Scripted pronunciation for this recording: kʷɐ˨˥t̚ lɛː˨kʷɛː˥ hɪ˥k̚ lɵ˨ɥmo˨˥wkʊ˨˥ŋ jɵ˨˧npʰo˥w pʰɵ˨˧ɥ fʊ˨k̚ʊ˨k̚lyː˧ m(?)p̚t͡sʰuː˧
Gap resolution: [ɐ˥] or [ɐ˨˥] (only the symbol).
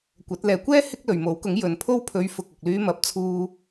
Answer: ɐ˨˥